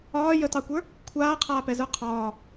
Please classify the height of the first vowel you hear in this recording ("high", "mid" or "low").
low